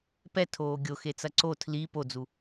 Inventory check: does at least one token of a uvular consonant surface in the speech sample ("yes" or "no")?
no